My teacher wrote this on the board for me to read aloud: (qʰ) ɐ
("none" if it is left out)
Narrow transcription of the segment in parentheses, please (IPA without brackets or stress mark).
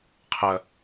qʰ